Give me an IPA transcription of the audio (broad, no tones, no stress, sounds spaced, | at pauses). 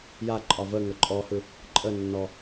j a ǃʼ ɒ v ə ŋ ə ǃʼ ɔ h ɯ | ǃʼ ə nː ɔ